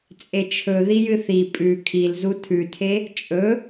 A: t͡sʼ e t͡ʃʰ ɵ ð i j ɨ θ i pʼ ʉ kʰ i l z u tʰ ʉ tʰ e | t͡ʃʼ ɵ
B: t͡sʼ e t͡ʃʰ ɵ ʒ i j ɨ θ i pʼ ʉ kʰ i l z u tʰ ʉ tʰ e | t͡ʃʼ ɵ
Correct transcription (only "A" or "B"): A